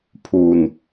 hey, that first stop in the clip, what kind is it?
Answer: aspirated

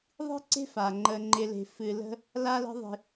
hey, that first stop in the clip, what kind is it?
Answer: click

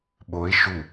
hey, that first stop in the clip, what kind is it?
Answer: implosive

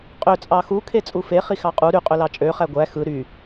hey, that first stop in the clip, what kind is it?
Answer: ejective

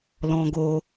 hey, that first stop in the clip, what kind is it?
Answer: plain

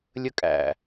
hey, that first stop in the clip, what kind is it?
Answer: ejective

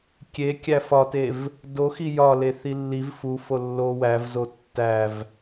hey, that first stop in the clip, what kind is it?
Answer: plain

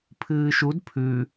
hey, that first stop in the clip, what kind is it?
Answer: aspirated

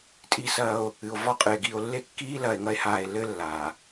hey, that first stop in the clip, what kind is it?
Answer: ejective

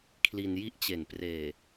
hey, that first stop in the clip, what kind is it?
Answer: aspirated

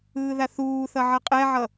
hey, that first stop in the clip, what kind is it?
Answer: ejective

